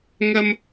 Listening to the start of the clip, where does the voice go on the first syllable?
high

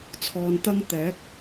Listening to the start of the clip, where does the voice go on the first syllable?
low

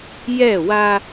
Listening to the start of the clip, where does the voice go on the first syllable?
falling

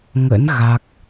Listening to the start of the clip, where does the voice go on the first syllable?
rising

